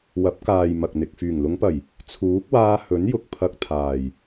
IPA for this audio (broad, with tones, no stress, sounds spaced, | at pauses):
w ɐ˨˥ p̚ k aː˨ j m ɐ˨ k̚ n̪ ɪ˨ k̚ f yː˨˩ ŋ l ʊ˨˧ ŋ p ɐ˨˩ j | t͡sʰ uː˨˥ k̚ w aː˧ h ɵ˨˥ n j ʊ˨ k̚ pʰ ɐ˧ k̚ t̪ʰ aː˨ j